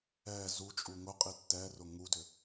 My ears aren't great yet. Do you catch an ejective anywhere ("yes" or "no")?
yes